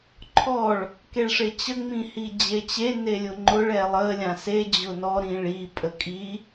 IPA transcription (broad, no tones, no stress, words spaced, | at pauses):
ǃʰɔɭ | keɭʂet͡ɕə ŋ͡mĩhid͡ʑet͡ɕe nelʲʊŋ͡ǃʊɭ ɛlˠə lʲãse d͡ʑʊnɔ ɾĩɭi pʼəkʼi